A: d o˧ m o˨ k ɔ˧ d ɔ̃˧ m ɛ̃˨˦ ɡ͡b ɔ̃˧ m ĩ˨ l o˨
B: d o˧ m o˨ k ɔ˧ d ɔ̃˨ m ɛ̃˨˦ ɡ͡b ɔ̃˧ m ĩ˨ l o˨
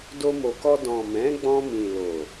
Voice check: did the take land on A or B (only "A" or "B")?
B